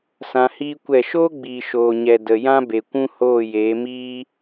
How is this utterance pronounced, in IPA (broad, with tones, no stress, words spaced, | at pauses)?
sã˧hiː˦kʷɛ˦˨ ʃoː˦ɡ͡biː˨ ʃoː˨ɲɛ˨ də˨jã˦ be˨kʷũ˦hoː˦˨jeː˨˦ miː˦